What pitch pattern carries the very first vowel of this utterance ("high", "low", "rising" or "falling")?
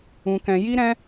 high